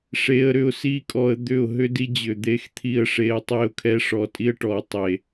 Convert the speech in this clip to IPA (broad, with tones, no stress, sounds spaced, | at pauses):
ʂ e˧ ə̯ ɾ ʏ˧ ʊ̯ s i˦ kʼ ɔ˧ ə̯ d̪ ʏ˦˨ ʊ̯ ɦ ʏ˦ d i˦ d͡ʑ ʏ˨ d̪ e˦ x t̪ʰ i˦ ə̯ ʂ e˧ ə̯ tˤ e˦˨ ʊ̯ kʰ ɛ˦ ʂ ɔ˧ tʼ i˦ ə̯ ʈ ɔ˨ tˤ e˨